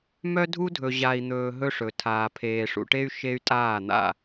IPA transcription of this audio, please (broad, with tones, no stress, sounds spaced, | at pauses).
m œ˦ dʱ u˦ dʱ ɵ˨ ʑ a˨ i̯ n̪ ɵː˨ ɦ ɵ˦ ʂ ɵ˨ tʰ aː˨ pʰ eː˨ ʂ ṵ˨ ʈ e˦ y̯ ʃ e˦ y̯ tʼ aː˦˨ n̪ a̰˦˨